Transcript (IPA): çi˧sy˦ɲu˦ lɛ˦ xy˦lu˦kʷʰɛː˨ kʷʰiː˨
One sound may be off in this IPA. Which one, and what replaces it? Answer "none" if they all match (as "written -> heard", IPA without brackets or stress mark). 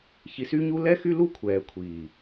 none